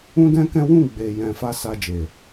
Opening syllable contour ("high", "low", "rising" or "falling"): high